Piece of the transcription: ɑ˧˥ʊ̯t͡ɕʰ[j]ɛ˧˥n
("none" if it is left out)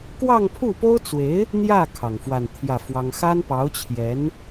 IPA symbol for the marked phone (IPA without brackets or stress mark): j